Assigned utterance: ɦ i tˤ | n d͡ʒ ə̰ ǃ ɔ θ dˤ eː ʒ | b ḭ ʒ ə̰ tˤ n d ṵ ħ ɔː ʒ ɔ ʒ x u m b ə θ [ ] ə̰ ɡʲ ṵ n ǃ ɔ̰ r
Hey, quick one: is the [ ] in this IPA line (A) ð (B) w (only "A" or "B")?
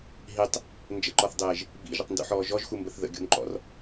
A